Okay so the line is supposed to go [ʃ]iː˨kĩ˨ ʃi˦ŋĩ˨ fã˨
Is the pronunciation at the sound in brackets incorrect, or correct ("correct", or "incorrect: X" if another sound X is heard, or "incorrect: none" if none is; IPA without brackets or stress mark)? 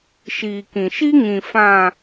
correct